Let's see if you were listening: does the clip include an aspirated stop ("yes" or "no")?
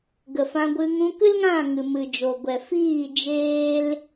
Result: no